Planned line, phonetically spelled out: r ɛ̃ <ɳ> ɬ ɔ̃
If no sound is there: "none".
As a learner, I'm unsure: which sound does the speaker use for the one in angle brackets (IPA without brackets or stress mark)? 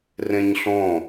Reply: ɲ